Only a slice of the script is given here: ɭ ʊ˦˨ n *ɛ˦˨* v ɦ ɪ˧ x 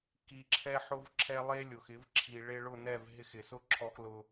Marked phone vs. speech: correct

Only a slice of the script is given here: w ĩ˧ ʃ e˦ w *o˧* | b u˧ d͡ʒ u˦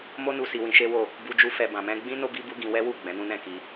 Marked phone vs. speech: incorrect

